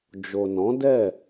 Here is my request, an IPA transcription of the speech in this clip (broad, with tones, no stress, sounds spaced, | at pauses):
d͡ʒ o˨ n ɔ̃˨˦ d ɛ˦˨